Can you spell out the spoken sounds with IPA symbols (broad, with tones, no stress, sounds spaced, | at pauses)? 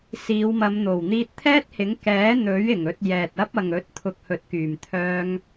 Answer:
s iː˨˧ w m ɐ˨˧ m n̪ o˨˩ w n̪ iː˧ t̚ t̪ʰ ɛː˥ t̚ h ɪ˨˥ ŋ k ɛː˨˥ n̪ ɵ˨˥ ɥ ɪ˨˩ ŋ ɵ˧ t̚ j ɛː˨ t̚ ɐ˥ p̚ ɐ˨ ŋ ɵ˨˥ t̚ t̪ʰ ʊ˨ k̚ h ɵ˨˥ t̚ k yː˨˩ m t̪ʰ œː˧ ŋ